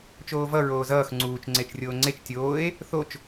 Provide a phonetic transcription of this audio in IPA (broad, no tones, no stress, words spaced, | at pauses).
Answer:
t͡ʃoːvʌ ɹoːzʌːx ŋ͡ǀuːt͡ʃ ŋ͡ǀet͡ʃrʲoːŋ͡ǀet͡ʃ tʲoːe̯ | θot͡ʃ